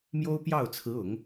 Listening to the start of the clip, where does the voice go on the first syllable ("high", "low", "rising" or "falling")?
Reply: high